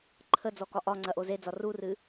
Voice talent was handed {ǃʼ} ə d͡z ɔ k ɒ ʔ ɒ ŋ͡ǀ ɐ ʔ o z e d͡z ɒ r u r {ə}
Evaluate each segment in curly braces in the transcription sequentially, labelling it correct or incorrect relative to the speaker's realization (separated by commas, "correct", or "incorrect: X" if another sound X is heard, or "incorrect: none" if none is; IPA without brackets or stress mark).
incorrect: ǃʰ, incorrect: ɨ